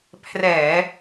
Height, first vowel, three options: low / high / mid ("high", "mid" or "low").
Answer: mid